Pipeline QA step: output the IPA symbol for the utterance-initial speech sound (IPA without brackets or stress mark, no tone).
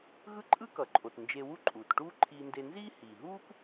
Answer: ɣ